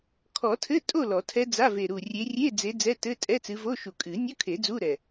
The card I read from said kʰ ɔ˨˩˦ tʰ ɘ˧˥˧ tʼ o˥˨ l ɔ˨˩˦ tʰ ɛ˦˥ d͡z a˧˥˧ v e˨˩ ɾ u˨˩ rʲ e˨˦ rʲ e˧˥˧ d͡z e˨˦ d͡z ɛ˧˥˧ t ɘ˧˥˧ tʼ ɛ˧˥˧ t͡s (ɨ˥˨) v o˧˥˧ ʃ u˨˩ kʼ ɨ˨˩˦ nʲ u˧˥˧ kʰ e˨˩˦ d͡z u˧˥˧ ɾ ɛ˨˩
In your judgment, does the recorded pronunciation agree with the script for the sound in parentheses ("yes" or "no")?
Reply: no